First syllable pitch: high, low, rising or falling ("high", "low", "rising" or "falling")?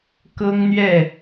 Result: high